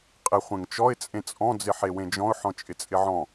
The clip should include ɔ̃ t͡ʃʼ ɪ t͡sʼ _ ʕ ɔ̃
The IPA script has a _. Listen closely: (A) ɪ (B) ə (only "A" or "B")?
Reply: A